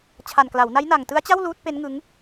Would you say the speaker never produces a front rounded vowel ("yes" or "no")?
yes